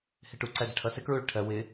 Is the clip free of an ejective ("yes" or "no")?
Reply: yes